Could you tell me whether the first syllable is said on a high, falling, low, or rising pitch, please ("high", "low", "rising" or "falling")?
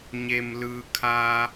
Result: low